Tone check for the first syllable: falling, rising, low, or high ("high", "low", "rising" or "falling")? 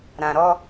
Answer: low